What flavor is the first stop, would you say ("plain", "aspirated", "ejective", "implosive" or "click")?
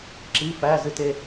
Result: click